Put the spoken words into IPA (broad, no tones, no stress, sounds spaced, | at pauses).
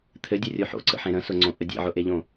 t̪ʰ ɘ dʲ o rʲ o ħ o̰ ǀ ə̰ ħ ẽ ɾ ə̃ s ʊ ŋ͡ǀ õ ʔ ə dʲ ḛ ʕ ʊ ʔ e ʎ õ